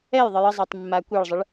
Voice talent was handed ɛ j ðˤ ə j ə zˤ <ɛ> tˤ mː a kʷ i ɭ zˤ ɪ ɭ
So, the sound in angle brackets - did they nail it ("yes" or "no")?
yes